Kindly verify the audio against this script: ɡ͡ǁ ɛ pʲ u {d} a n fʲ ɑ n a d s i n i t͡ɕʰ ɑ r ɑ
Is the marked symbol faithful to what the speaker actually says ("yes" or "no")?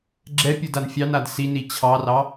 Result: yes